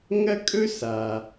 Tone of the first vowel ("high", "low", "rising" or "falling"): high